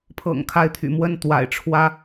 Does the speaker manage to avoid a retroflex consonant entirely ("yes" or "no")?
no